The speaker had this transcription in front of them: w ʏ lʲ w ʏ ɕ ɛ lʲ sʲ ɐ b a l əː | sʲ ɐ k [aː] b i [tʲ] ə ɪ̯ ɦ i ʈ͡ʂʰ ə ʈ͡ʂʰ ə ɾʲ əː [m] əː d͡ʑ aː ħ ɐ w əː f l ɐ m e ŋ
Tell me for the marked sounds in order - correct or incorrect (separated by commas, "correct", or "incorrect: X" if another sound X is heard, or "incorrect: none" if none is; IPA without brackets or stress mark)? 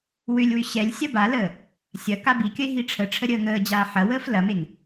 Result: incorrect: a, incorrect: kʲ, incorrect: ŋ